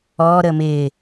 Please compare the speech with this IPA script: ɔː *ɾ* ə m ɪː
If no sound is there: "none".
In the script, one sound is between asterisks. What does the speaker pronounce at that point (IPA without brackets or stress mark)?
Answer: ɾ